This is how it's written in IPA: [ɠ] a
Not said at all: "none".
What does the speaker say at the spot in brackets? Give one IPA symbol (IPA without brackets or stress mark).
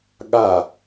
ɠ